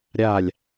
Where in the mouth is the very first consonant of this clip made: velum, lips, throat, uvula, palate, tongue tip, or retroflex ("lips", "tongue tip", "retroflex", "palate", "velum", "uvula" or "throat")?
tongue tip